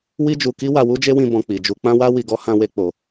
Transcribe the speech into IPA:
wi˦d͡ʒu˧ki˦wa˧ wu˦d͡ʒe˦wĩ˧ bɔ̃˧k͡pi˨d͡ʒu˧ k͡pã˦wa˦ wi˧ɡɔ˦ hã˧we˧ k͡po˨

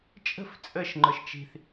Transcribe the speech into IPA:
t͡ʃʼə̤f t͡sʼəʃŋ͡ǃɤʃ t͡ʃi̤θ

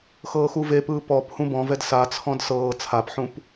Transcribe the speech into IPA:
xɤːxuvepɯː pɔp hũbɔ̃vɛd sat͡sʰɔ̃d sɤː t͡sʰapħũp

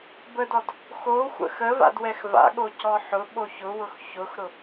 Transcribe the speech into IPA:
bədɔd | xoxʷə̰ xəva̰dwɛx va̰ɠocɔ ħʊɓo çʊwʊx çʊxɾʊ

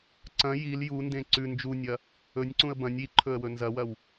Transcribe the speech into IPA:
ǀɐ̃ jil jundẽ ǀʉ nd͡ʒunʲɐ | ɵnʲǀũə̯ bɐ̃nʲ iǃʰɵə̯wɵ nzɐwɐw

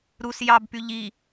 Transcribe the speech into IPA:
ɾus jɑbpy ʎi

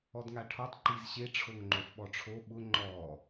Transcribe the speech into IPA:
ɔdŋaʈʰɔtˤ ǃizɕe ʈ͡ʂʰoŋŋ͡ǃofɓɔʈ͡ʂʰo ɓʊ ŋ͡ǃɔ

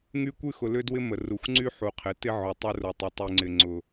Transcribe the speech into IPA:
ŋy˦kʷy˦ xʊ˨lʏ˦dwɪ˦ mə˨ru˨xʷ ŋ͡ǀy˦ħu˨qʰɪ˨˦ tɪ˦ʕʊ˨ tˤʊ˦rʊ˨tˤɪ˨ tˤy˨ŋ͡ǀɪ˨ ŋ͡ǀʊ˨

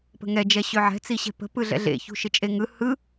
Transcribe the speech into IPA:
pə̤ŋɛd͡ʒɛ ɕøʕɛ̤ t͡siɕɛ̤pə̤ pɯɮɛ̰ɮḛçṳ ʃɪt͡ʃʼeŋɯ hɯ

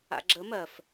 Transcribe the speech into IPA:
a̰ɡ͡ǁə mɜf

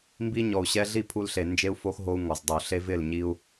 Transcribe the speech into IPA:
mbi˧ ɲɔ˨u̯ɕɛ˧ ɮi˦˨ pʰu˧lɬe˨ nd͡ʒe˧u̯fo˧x ɦo˧u̯ ŋɔ˨zdˤu˨ ɬe˧vɪ˦˨l ɲi˦u̯

